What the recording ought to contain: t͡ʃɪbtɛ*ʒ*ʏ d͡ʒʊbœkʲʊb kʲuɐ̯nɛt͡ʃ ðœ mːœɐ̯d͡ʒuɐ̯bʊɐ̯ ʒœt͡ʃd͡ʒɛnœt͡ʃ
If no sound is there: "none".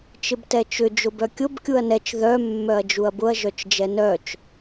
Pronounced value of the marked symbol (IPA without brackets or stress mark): t͡ʃ